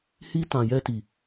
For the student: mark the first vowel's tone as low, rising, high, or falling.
high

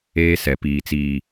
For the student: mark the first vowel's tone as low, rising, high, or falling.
high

